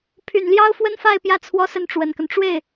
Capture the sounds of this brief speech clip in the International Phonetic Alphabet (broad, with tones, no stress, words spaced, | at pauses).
pʰy˨˩nljɑ˥ʊ̯ fwə˥nfa˥˧ɪ̯pjä˥˩ t͡sʰwɔ˥sə˥˩nʈ͡ʂwə˨˩nkə˦n ʈ͡ʂwe˥˩ɪ̯